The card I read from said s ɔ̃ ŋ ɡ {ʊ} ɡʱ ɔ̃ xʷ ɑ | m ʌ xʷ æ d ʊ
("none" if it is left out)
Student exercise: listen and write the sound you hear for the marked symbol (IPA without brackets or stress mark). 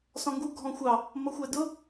u